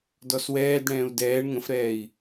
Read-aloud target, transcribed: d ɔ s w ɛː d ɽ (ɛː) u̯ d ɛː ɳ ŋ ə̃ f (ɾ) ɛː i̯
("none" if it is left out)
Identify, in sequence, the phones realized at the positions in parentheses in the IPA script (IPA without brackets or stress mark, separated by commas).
ɛ̃ː, ɾ